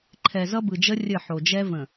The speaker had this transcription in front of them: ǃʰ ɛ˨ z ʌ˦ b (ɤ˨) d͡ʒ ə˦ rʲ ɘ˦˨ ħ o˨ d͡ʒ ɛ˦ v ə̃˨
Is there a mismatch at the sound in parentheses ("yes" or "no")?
yes